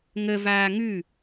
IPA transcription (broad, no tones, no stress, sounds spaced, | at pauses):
ŋ ə v aː ŋ ʉ